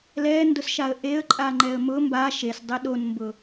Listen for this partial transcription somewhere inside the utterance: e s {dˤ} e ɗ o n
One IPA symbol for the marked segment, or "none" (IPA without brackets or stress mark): dˤ